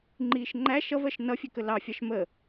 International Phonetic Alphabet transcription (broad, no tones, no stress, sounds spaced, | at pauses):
ŋ͡ǃ iː ʃ ŋ͡ǃ æ ʃ ʌ v ɜ ʃ n ʌ fʲ ɛ k ə l ɑ fʲ ɑ ʃ m ə